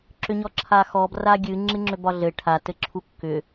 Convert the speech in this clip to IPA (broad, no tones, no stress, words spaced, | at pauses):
ǁʏɲɔǁʰaxɔ braɡʲɨ ŋ͡ǁɨŋ͡ǁʏbɒɮɘ ʈʰa tɘǁʰukːʏ